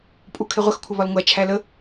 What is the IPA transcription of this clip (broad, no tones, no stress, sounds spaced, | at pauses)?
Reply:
pʼ u kʰ ɪ ʁʷ ə x kʷʰ ə β ɒ l ŋʷ æ t͡ʃʰ æ l ə